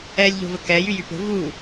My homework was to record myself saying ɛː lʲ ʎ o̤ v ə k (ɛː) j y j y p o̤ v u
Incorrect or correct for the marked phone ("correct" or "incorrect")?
correct